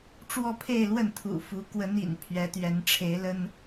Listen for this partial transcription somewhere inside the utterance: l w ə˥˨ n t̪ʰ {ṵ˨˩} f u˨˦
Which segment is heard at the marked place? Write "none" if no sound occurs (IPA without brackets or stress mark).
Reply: ṵ˨˩